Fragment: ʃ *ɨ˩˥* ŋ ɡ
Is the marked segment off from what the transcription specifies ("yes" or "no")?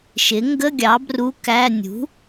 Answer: yes